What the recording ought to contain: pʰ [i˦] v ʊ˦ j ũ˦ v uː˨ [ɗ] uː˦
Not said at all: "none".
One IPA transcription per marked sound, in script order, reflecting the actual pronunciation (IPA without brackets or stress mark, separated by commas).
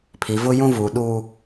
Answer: i˨, ɗ